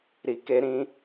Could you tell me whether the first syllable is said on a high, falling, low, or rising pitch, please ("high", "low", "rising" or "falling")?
low